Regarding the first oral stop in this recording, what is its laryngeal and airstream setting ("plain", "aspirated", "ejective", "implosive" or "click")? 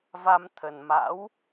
aspirated